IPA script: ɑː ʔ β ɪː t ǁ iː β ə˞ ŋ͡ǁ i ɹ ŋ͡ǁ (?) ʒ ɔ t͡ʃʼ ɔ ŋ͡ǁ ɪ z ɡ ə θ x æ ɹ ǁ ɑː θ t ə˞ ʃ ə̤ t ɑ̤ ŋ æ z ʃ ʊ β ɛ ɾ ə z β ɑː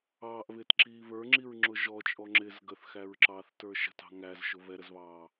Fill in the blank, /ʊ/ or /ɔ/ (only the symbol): ʊ